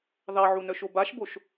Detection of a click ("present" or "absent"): absent